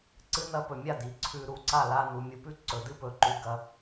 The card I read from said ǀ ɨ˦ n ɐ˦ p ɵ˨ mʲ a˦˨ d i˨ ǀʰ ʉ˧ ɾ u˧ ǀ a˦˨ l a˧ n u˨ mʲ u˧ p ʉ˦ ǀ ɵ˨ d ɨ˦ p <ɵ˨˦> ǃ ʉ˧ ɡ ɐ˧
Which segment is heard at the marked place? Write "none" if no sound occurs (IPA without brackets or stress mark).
ɵ˨˦